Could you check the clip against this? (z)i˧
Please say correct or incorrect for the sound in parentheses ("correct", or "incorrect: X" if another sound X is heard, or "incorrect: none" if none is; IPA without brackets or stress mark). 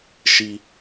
incorrect: ʃ